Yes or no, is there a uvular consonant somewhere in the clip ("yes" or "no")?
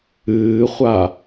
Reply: yes